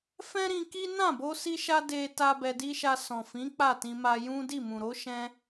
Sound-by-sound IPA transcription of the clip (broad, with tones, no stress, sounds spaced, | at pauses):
f ɛ̃˦ ɾ ĩ˧ k i˦ n ã˦˨ b o˧ s i˧ ʃ a˧ d e˦ t a˦ b ɛ˧ d i˦ ʃ a˧ s ɔ̃˨ f ĩ˨˦ k͡p a˦˨ t ĩ˧ m a˧ j ũ˦ d i˦˨ m ũ˨ ɾ o˨˦ ʃ ɛ̃˧